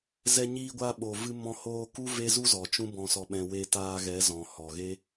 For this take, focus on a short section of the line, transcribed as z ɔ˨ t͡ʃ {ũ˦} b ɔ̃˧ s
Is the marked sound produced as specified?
yes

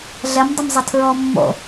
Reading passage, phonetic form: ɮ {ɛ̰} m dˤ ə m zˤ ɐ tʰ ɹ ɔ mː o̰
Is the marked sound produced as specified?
no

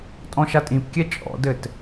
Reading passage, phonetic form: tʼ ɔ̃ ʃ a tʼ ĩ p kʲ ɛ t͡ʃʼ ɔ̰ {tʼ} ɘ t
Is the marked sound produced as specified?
no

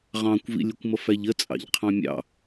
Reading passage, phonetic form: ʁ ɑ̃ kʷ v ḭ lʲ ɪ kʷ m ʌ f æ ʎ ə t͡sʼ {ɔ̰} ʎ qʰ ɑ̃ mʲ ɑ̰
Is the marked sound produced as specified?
no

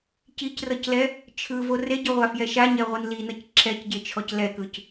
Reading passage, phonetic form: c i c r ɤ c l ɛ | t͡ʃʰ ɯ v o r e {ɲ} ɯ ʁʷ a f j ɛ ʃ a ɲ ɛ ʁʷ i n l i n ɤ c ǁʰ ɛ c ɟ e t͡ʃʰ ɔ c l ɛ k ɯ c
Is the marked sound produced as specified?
no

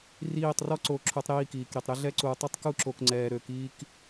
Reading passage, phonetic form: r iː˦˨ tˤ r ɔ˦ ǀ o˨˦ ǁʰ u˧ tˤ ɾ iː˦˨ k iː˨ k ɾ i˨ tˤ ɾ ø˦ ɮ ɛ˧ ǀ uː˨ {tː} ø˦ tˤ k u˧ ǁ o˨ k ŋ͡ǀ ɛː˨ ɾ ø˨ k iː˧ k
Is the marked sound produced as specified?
no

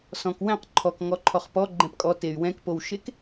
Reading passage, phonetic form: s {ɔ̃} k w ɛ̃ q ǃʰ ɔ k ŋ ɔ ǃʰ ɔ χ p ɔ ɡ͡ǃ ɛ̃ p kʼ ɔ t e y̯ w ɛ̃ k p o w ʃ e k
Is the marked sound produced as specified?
yes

